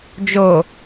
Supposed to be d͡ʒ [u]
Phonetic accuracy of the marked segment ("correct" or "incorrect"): incorrect